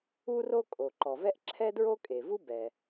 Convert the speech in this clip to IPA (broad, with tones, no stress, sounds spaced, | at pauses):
u˥ r o˥ kʼ o˩ ǃ ɔ˩ v ɛ˥ ʔ ǁʰ ɛ˥ d ɹ o˥ kʼ e˩ v u˥ b ɛ˩